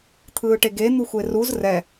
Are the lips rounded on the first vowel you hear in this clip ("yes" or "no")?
no